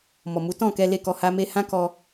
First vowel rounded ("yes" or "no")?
yes